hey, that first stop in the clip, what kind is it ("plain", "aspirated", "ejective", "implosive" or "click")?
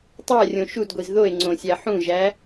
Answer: plain